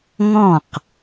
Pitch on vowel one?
falling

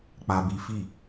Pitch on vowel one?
high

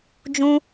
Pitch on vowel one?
high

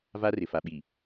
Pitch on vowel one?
high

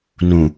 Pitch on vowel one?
low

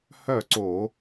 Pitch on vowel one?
falling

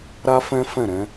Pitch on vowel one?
high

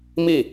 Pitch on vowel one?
falling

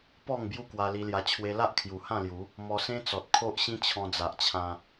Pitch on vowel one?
falling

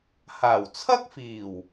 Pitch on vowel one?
low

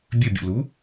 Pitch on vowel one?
falling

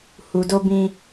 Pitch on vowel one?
low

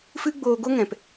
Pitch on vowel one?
high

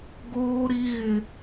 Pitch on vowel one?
high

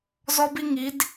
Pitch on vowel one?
high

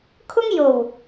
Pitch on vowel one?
high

